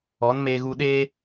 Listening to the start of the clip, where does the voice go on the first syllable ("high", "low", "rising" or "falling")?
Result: rising